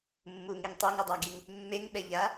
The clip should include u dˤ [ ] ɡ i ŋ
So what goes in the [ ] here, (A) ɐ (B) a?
B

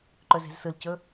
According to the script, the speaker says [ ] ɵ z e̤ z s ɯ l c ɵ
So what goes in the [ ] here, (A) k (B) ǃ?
B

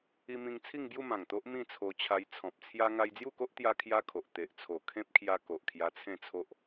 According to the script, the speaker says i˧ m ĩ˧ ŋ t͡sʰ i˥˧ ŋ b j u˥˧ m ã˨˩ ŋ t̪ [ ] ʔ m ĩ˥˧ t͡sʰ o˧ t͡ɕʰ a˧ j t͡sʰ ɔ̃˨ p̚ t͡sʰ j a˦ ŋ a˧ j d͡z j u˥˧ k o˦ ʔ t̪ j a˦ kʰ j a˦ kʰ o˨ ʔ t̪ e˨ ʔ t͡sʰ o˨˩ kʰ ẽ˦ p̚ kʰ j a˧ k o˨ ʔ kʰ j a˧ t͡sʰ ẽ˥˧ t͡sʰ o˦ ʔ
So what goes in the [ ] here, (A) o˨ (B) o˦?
B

